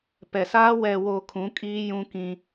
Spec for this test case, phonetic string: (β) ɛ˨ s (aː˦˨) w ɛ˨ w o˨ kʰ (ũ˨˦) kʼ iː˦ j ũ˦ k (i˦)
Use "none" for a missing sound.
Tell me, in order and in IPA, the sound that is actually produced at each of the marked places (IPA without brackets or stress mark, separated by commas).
p, aː˦, ũ˨˦, ĩ˦